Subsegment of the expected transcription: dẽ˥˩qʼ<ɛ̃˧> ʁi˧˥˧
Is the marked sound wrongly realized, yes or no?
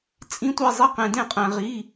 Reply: no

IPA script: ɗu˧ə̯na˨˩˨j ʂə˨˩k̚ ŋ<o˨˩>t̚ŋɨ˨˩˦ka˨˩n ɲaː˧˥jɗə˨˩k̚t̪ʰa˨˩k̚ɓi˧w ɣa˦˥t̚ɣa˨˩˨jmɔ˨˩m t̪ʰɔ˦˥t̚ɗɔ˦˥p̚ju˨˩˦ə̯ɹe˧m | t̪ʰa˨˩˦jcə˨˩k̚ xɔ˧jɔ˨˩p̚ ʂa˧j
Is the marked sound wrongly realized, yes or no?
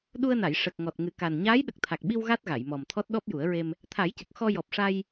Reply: yes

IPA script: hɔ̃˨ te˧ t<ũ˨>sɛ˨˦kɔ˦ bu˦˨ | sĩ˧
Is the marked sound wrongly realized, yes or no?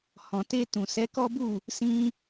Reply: no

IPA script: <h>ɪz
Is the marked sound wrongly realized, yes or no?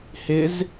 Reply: no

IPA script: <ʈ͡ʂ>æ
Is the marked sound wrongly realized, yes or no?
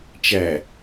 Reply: yes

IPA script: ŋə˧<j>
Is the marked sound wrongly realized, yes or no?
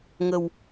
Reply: yes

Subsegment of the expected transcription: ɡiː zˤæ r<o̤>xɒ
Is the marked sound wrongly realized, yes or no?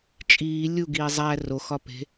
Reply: yes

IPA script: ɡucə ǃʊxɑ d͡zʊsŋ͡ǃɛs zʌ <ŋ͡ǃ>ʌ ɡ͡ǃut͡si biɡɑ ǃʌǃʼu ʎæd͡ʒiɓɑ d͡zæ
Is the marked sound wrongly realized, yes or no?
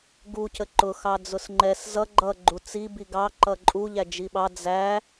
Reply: yes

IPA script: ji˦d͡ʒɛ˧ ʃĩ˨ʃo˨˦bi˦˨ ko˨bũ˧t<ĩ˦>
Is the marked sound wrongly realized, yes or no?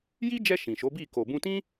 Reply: no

